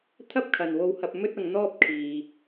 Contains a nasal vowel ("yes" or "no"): no